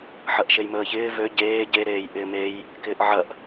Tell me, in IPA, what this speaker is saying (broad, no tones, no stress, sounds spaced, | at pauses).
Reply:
ħ ɐ ʔ ʃ e j m əː ç ɪː v ø ɟ eː ɟ e ɾ eː j ʔ ɪː m e j | k ɪː ʔ ʕ ɐ ʔ